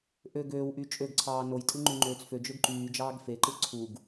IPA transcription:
ʔø ɡøːwʔy t͡ʃʼøɡǀʰɑː nojtʼɯ ŋ͡ǃyŋ͡ǃøːt͡sfød͡ʒøɡ ǃyːd͡ʒɑːɡ feǃɯ ǀʰuɡ

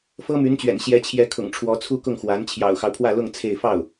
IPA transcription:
fɤ˥my˧˥nt͡ɕɥɛ̰˨˩n ɕjɛ˧˥t͡ɕʰjɛ˧˥kʰʊ̰˨˩ŋʈ͡ʂʰwɔ˧˥ t͡sʰu˥˧kʊ˥˩ŋxwa˧˥n t͡ɕʰjɑ̰˨˩ʊ̯xɑ˦ʊ̯pʰwä˥˧lʊ˥˧ŋ t͡sʰe˥˧ɪ̯ fɑ˥˩ʊ̯

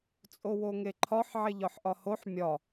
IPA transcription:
t͡sʼowoŋeǃʰɒħ ʕeʎɒħʔɒhoħ mʲɒ

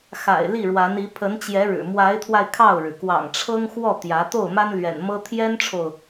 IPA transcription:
xa̰˨˩ɪ̯ li˥˩ɻwa˧˥ni˧˥ pʰə˧˥nt͡ɕjɛ˧˥ɻɻ̩˨˩ mwa˧˥ɪ̯t̪ʰwa˧ɪ̯ kʰɑ˥˩ʊ̯ɻɻ̩˩ kwɑ̰˨˩ŋʈ͡ʂʰɤ˥ŋ xwɔ˥˩ t̪jä˧˥ t̪o˥˩ʊ̯ma˥n lɥɛ̰˨˩nmɤ˥ t̪ʰjɛ˥nʈ͡ʂʰo˨ʊ̯

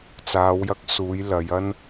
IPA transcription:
t͡saː˨˧wjɐ˧k̚suː˨˧j lɐ˨˧j ɐ˥n

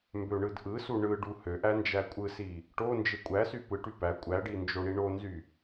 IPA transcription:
mbøɳɯdʔɯsu ɳɯ ɖuhøʔæ nd͡ʒækʷʼɯsi | ʈond͡ʒe kʷʼæsy pɯʈy pæ kʷʼæɖi nd͡ʒoɳiɳonzy

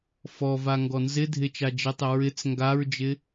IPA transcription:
fɔva ŋɡɔnzɪ dʱɪt͡ʃad͡ʒitˤɪ ɹɪt͡s ŋɡaɹd͡ʒɪ

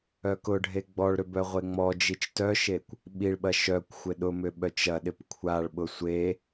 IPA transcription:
œkʊɖʱe ɡ͡bɔɭɾʏ bœʁʷeŋ͡mɔd͡ʒit͡ʃ tœʃekʷ | ɓiɭɓɐ ʃœkʷxʷɪ ɗʊmʏ ɓœt͡ʃɐɗɪp kʷʰaɭɓʊ sʷe

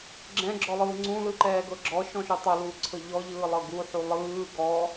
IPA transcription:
ɡ͡ǁɛ̃ɡ͡ǁɔlˠɯː ŋ͡ǀũlɯǃɛːɡɤ ɡ͡ǁɔʃɔ̃ʃu tˤuluːǀʰɤ ʎɔʎɯːlˠɤ ɡuħu lˠɯː ɡɔ

